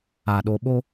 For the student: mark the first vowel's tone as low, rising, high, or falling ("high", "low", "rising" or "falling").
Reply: low